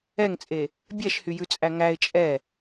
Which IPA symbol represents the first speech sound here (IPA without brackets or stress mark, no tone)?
ɛ